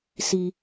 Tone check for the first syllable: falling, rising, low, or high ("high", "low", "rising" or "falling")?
low